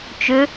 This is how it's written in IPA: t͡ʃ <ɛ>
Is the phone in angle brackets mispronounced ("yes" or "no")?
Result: yes